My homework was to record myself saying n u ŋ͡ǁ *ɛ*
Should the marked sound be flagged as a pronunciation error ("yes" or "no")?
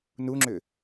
yes